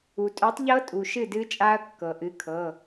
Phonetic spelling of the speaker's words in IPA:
u˩ tʼ œ˨˥ tˤ ʎ ɤ˦˥ tʼ u˩ ʃ ɨ˥˩ d ɨ˦˥ t͡ʃʼ a˦˥ ɐ̯ kː ɤ˩ ʔ ɨ˨˥ kʰ ɤ˩˧˩

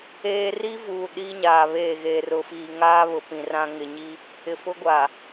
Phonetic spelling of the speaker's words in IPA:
eː˦ r i˦ v uː˨ ɗ iː˦ ɲ aː˨ β eː˦˨ ɣ eː˨ r ʊ˨ f iː˨ ŋ aː˦ β ʊ˨ p ĩ˨ r ã˦ ŋ ɪ˨ ɲ i˦ | ɪ˨ f ʊ˦ ɡʷ a˨

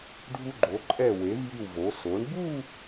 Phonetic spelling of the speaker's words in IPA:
ɖʱ u˧ ɡ͡ǃ o˩˧ ǃʼ ɛ˧˩ w e˩˧ v j i˧˩ w v o˩˧ s o˩˧ ɳ b u˥˧

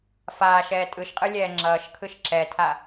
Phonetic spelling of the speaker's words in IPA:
f aː ʃ ɛː tʼ ɯ ʃ qʼ ɯ lʲ ɛː ŋ͡ǁ ʌː ʃ kʰ ɯ ʃ ǁ ɛ tʰ a

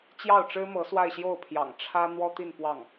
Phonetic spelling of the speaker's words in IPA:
t͡ɕ j ɑ˥˩ ʊ̯ ʈ͡ʂ ɻ̩˥ m ɤ˧˥ s w a˥˧ ɪ̯ ɕ j o˥˩ ʊ̯ pʰ j ɑ̰˨˩ ŋ ʈ͡ʂʰ ä˥ n̪ w ɔ˥ t̪ i˥˧ n p w ɑ˥˩ ŋ

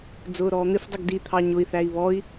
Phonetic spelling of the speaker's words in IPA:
d͡z ʊː ɾ ɔː n̪ ɪ f dˤ u ɡ d i t̪ʰ ɑ ɲ ʊ i̯ θ æ i̯ β ɔ i̯

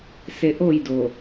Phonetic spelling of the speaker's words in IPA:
s e ʔ o j d o

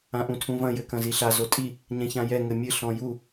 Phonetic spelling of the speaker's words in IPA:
ã ʔ ũ tʰ ũ v ɐ̃ j ɘ k ɐ̃ z i ɬ a z o tʼ i | ɲ ɛ̃ ç ã j ɛ ŋ ɘ mʲ ɨ ɬ ɔ̃ j u

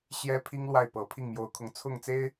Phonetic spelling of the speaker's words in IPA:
ɕ j ɛ˥ pʰ i˥ ŋ l w a˥˩ ɪ̯ p ɤ˧˥ pʰ i˥˩ ŋ m j o˧˥ ʊ̯ kʰ ʊ˧˥ ŋ t͡sʰ ʊ˥˩ ŋ t͡s e˥ ɪ̯

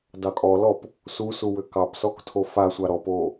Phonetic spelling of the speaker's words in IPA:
d ɑ kʼ ɔ l ɔ p | s u s u w ʏ k ɑ p s ɔ k tʰ o f a sʷ a ɾ ɔ p o

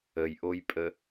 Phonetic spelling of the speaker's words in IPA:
ə j ʔ o j pʼ ə

